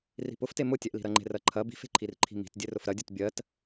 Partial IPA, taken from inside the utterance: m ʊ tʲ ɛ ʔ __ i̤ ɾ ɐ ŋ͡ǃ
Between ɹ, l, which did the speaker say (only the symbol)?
l